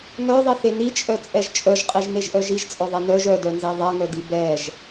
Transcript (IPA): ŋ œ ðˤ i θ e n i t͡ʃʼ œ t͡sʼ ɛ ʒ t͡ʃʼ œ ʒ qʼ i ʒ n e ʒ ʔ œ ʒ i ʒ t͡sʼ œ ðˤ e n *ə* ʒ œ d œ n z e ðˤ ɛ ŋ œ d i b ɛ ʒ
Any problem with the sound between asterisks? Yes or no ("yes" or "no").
yes